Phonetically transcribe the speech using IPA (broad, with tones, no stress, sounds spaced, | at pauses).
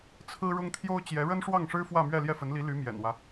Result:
t͡sʰ ɹ̩˥ ɻ ʊ˥ ŋ t̪ʰ j o˥ ʊ̯ t͡ɕ j ɛ˧˥ ɻ ə˥ n ʂ w ɑ˥˩ ŋ ʂ ɻ̩˥ f w ä˥˧ m ɥ ɛ˥˧ l j ɛ˥˩ f ə˧˥ n l i˧˥ l y˧˥ m j ɛ̰˨˩ n w ä˦